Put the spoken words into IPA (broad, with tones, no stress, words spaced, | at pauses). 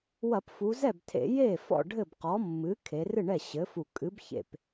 wɐ˧˩˧pfu˩˧ zɛ˥˩btʰḛ˧˩˧ je˥˩ fɔ̰˥˩ ɖʱɘ˥˩bqɔ˩˥mːɨ˩˥ kʰe˩˧rɨ˥˩ɳɛ˥˩ ɕɘ˩˥fu˧˩ kʼɨ˩˥bçḛ˧˩p